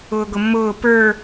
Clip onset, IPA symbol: ʊː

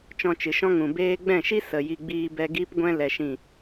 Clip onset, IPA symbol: t͡ʃ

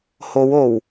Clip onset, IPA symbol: h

